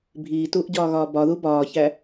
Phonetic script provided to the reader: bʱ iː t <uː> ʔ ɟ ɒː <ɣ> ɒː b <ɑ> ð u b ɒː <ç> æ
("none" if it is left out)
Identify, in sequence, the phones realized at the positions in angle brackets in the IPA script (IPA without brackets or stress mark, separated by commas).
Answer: uː, ɣ, ɒ, ç